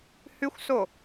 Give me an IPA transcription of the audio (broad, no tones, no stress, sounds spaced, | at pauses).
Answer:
h ʉ xʷ s o